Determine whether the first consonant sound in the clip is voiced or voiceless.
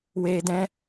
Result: voiced